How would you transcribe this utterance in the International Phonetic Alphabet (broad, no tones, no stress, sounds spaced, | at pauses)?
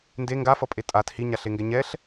n d e ŋ ɡ a f ʌ pʼ e tʼ a t h i ɲ a ɬ e ŋ ɡ ɛ ɲ ɛ ɬ